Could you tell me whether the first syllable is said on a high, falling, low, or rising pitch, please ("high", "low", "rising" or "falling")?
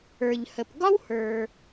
low